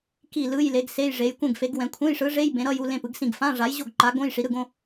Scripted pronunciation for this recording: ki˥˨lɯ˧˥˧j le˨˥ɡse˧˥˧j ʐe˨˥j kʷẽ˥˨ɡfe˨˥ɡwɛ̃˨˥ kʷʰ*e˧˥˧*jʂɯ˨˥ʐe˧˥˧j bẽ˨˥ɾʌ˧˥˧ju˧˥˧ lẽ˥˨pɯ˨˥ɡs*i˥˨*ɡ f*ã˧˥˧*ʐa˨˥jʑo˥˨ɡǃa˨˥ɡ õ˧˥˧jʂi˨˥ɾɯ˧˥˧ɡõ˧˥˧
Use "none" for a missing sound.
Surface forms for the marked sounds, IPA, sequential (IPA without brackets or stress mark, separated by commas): ẽ˧˥˧, ĩ˥˨, ã˧˥˧